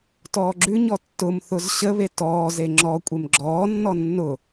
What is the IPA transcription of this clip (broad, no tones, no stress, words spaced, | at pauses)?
tɔːɡ͡ǁʉɲɔ tːʊmθʊz ɕəβe tɔːze ŋ͡ǁɔ kʷʼemɡ͡ǁɔːnːɔ nːʊ